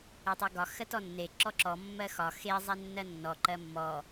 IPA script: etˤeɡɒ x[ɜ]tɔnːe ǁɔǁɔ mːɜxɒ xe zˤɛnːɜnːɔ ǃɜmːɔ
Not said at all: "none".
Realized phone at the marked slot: ɜ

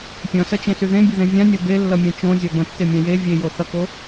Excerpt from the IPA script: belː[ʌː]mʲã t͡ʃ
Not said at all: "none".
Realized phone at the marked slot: ʌ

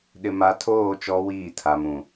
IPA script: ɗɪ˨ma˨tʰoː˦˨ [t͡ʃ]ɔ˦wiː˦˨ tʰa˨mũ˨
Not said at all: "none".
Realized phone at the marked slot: t͡ʃ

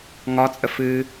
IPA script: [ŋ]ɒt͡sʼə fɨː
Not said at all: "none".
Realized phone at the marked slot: ŋ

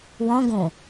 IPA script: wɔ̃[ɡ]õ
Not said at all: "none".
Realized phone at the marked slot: ɡ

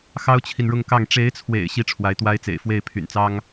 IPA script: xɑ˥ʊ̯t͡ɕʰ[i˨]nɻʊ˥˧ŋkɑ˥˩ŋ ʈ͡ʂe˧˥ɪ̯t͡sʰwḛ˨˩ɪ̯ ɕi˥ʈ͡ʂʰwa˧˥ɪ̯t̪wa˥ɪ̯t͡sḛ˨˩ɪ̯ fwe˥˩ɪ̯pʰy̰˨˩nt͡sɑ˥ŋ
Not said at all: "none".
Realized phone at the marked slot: i˨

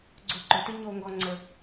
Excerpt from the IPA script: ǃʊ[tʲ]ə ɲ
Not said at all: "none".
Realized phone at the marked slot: t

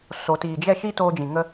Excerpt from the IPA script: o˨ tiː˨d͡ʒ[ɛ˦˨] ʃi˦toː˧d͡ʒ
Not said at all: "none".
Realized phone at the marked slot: ɛ˦˨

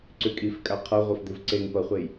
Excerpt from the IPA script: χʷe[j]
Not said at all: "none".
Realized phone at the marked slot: j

